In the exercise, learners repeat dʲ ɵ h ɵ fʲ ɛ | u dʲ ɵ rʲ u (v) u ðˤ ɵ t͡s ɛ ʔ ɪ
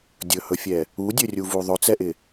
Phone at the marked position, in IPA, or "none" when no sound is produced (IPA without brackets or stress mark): v